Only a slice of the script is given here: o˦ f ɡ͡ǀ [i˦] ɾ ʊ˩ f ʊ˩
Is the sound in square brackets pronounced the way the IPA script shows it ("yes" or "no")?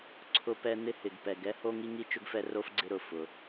no